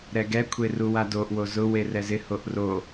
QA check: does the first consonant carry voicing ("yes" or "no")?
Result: yes